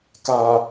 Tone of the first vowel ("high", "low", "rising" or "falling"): low